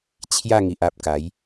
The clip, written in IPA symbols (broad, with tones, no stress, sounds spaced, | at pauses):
t͡ɕʰ j a˥˧ ŋ i˨ ʔ a˨ p̚ k a˨˦ j